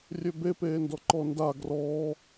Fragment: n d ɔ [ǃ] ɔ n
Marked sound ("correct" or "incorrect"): correct